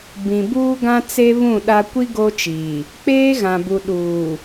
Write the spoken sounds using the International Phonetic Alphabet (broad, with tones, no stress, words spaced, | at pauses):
bĩ˨buː˦ɡã˦t͡se˦ βũ˦˨ɗa˦ kʷi˦ ɡo˦t͡ʃiː˨ | k͡peː˦ɣã˨bu˨ ɗuː˨